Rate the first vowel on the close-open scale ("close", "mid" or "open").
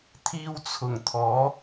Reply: close